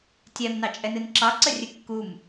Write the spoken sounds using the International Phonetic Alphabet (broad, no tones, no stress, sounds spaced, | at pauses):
tʲ ɛ m n ɑ t͡ʃʼ ɛ n ɨ n ǁ ɑ ǀ ə rʲ ɨ kː u m